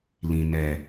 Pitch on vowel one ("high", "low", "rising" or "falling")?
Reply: low